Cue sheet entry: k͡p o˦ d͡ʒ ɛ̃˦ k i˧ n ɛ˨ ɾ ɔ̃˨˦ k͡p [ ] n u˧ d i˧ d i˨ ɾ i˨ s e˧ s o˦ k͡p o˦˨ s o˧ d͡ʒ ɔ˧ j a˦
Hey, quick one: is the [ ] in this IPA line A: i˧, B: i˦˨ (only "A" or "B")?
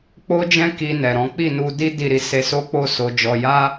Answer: B